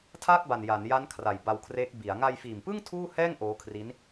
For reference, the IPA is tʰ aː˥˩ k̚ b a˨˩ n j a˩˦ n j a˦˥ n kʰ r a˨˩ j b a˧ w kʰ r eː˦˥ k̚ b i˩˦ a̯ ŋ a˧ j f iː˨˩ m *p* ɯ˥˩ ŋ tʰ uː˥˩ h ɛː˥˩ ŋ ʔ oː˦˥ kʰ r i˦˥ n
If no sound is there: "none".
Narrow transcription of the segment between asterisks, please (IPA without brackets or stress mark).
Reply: p